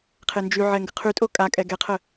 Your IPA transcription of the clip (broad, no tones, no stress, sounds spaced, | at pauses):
qʰ e n d͡ʒ y ʕ ɛ ŋ ɡ ə qʰ y tʼ o kʼ a kʼ ɛ ɡ ɛ qʰ ə